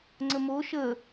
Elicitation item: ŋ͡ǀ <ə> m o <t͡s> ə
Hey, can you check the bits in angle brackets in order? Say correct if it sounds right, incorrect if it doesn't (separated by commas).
correct, incorrect